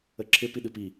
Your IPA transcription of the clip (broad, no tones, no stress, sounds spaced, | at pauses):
ə ǁʰ ɪ p i ɗ ɨ p i